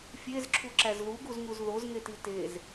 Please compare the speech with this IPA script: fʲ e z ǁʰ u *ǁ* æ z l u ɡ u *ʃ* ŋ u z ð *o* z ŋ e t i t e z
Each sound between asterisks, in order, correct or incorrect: correct, incorrect: z, correct

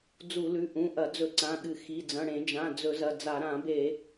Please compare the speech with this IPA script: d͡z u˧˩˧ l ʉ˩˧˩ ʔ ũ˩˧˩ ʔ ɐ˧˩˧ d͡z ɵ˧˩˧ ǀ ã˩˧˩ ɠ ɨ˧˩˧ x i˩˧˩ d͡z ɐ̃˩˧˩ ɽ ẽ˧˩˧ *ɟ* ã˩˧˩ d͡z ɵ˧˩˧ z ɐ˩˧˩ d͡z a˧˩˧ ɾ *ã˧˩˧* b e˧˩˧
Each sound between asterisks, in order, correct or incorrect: incorrect: d͡ʒ, correct

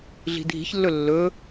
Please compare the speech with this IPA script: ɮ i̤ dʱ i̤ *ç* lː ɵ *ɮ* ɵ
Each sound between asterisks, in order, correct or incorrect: correct, incorrect: lː

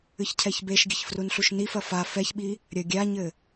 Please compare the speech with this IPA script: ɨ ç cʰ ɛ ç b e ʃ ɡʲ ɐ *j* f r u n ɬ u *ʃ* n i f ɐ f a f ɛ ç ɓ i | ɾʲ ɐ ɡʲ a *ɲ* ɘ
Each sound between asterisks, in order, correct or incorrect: incorrect: ç, correct, correct

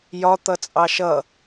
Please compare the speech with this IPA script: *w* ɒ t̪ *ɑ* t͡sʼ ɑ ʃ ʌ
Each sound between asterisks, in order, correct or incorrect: incorrect: j, incorrect: ʌ

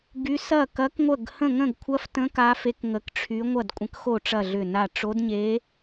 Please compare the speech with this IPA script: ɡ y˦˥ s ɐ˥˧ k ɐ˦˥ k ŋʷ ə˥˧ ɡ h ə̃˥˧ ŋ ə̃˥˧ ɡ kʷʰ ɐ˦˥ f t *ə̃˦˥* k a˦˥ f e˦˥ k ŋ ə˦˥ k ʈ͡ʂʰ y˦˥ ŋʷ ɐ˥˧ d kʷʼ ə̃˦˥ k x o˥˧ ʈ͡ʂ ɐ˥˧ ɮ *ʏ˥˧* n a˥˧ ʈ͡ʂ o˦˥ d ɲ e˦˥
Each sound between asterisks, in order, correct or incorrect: correct, correct

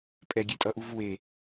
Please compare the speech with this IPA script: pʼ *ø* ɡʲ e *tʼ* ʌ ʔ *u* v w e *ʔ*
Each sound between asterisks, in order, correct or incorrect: incorrect: ɛ, correct, correct, incorrect: none

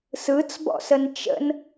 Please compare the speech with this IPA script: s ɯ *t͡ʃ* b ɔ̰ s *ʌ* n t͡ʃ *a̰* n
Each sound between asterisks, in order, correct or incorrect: incorrect: t͡s, incorrect: ə, incorrect: ə̰

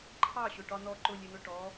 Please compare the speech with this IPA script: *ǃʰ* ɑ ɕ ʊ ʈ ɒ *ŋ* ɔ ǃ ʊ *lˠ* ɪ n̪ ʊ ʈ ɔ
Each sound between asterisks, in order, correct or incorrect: correct, incorrect: n̪, incorrect: lʲ

